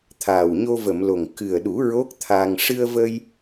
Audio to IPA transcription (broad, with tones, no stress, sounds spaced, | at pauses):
t̪ʰ aː˨˩ w ɲ o˧ v ə˨˩˨ m l o˨˩ ŋ k ɨ˨˩ ə̯ ɗ u˨˩˦ ɹ o˦˥ k̚ t̪ʰ a˧ ŋ ʂ ɨ˧ ə̯ v ə˧ j